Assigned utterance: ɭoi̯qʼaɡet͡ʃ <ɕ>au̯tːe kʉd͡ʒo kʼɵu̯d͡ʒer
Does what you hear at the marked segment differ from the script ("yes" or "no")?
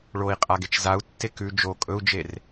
yes